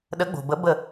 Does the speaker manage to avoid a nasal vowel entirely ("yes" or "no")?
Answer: yes